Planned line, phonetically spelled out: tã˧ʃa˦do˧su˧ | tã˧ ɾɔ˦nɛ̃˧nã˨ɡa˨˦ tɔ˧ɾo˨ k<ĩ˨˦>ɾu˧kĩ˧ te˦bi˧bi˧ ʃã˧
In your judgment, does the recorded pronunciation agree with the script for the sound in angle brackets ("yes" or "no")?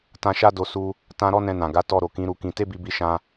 yes